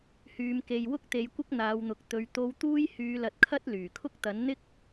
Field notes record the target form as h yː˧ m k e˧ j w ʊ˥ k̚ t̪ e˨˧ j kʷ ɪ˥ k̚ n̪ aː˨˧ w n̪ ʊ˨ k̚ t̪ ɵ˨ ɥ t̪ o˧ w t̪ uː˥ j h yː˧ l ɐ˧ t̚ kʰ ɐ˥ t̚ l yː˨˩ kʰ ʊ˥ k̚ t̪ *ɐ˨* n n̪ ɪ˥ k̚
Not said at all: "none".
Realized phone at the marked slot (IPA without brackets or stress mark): ɐ˨˥